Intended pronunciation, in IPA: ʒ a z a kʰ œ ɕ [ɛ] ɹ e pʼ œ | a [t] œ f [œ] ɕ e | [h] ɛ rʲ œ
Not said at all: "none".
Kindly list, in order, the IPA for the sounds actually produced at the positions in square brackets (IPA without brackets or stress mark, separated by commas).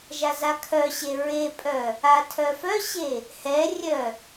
e, tʰ, œ, h